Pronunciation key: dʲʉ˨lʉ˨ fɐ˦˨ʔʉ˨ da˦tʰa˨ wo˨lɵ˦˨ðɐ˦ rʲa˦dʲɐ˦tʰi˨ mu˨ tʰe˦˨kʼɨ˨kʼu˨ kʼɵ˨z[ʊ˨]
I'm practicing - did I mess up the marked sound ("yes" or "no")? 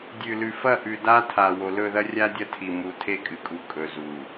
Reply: yes